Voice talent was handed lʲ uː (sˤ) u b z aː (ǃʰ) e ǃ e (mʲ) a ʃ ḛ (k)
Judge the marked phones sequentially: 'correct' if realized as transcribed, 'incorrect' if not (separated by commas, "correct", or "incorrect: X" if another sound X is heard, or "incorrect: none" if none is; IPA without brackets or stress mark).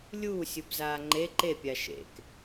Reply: incorrect: sʲ, incorrect: ŋ͡ǃ, incorrect: pʲ, correct